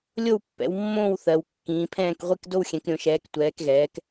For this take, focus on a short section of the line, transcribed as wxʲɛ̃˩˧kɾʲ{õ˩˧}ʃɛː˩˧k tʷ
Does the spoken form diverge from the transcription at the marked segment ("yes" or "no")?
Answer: no